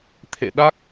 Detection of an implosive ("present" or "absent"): present